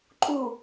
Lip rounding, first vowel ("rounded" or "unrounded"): rounded